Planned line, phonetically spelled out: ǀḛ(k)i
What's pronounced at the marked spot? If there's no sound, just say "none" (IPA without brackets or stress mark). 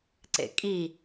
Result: kʼ